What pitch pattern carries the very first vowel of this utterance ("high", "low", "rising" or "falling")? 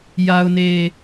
low